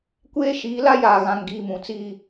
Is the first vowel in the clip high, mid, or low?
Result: mid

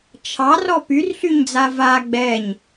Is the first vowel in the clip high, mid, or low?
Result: low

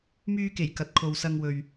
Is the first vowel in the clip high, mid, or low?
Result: high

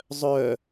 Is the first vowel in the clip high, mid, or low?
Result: mid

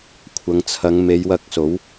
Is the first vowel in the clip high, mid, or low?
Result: low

